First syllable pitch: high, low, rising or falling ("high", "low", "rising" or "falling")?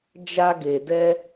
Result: high